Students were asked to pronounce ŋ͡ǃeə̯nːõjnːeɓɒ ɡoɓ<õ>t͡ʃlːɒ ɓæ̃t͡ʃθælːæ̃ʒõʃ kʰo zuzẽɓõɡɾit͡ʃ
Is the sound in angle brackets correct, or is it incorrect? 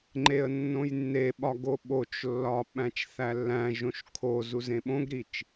incorrect